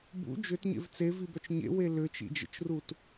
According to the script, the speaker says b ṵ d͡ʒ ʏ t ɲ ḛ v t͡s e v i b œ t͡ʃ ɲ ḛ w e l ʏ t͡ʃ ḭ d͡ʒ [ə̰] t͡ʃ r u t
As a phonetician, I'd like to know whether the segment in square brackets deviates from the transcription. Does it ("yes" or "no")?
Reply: no